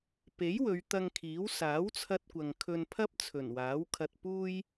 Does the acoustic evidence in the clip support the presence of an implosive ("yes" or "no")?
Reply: no